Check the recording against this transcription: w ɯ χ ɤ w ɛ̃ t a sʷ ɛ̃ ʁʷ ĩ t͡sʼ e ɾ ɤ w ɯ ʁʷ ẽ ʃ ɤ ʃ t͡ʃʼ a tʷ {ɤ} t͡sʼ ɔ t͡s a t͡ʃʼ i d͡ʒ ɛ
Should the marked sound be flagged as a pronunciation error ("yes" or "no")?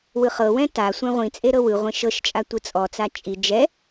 yes